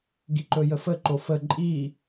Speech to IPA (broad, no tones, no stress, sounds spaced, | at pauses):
ɡ i ǃ ɵ j ə f ə ǃ o f ə ǃʼ i